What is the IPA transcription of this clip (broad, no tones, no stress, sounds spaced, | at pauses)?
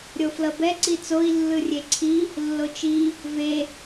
ɾʲ o f l ʌ b ɛ ǀ i t͡s o i̯ lː ɯ rʲ e ǀʰ i | lː o t͡ʃ i | v e